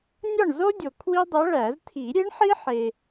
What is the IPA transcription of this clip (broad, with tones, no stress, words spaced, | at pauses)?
nʲɒ˥˨ɳzo˥dʲo˨ kʰwi˥dˤæ˧˥ɭæ˨˩˦z tʰi˨˩˦ɾʲe˧˥ɳ ħi˥ħe˨